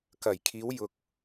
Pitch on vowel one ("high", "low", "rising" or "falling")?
low